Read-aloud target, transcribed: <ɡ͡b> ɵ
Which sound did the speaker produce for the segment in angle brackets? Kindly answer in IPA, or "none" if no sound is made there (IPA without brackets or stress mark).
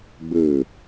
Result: ɡ͡b